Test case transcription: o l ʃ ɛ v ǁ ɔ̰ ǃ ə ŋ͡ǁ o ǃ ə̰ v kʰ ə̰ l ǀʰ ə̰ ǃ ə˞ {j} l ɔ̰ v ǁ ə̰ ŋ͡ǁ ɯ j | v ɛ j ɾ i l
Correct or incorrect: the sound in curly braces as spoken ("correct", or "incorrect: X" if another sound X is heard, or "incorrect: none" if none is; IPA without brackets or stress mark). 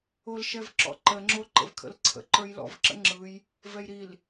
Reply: correct